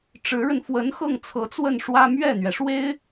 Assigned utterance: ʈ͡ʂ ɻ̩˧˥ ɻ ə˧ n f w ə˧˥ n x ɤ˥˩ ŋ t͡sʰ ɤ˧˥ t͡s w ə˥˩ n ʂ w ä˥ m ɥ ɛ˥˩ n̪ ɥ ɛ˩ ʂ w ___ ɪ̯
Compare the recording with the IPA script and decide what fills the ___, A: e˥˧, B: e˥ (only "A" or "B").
B